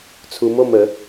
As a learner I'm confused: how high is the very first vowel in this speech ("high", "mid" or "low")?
high